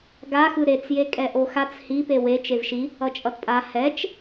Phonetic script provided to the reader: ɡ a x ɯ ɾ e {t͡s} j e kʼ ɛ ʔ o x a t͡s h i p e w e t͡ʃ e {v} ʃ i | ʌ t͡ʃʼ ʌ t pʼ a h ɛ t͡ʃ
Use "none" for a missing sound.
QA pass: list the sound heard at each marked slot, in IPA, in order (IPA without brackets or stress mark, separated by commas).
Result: t͡s, v